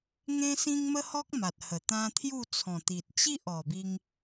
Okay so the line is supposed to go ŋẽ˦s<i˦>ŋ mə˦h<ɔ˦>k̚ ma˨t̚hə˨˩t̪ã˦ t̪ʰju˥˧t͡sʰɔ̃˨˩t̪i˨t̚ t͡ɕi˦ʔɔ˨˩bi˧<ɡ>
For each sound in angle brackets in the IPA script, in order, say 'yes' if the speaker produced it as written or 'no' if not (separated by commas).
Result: no, yes, no